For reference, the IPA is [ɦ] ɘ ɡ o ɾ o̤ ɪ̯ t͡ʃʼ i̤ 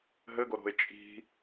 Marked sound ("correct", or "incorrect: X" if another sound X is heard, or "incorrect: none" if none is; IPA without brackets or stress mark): correct